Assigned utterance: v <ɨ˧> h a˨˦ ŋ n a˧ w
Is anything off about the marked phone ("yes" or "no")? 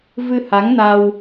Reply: no